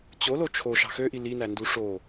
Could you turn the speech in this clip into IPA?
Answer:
t͡ɕ o l o t͡ʃʰ o ʃ ɑ̤ x ø ʔ i l i n æ n d u ʂ o

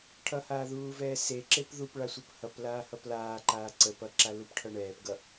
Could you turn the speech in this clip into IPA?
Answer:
ʈʰ ʌ h aː ð uː v ɛː s e ǁ e p ð u p ɭ a sʷ ʌ p h ʌ p l aː h ʌ p l aː ǃ aː ǀ ə p ʌ ǁ a l u p ʈʰ ʌ ɳ ɛː p ɡ ʌ

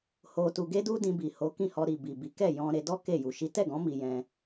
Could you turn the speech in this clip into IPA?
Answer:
h o˧ t u˧ ɡ e˦ d u˦ d ĩ˧ b i˨ h o˨˦ k ĩ˦˨ h ɔ˧ ɾ i˨ b i˨ b i˨˦ k ɛ˦˨ j ɔ̃˧ ɾ e˧ d ɔ˦ k e˦˨ j u˨ ʃ i˨˦ t ɛ˦˨ ɡ ɔ̃˨˦ m i˧ j ɛ̃˧

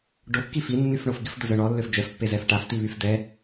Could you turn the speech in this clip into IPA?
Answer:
ɖ o kː i f i nː y f ɳ o f ɡ ɪ f d ʊ z œ ɳ ɔ lː ø f d͡ʒ ɛ f pː e z ɛ f ʈ a f t i β y f d ɛ

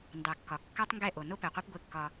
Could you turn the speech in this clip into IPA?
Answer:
n d ɑ˨ kː ɒ˨ kː ɑ˦ tˤ ŋ ɡ ɛ˦˨ ʔ o˨ n o˦ p ɛ˨ qʷ ɛ˦ p ɡʷ e˦ kː ɒ˦

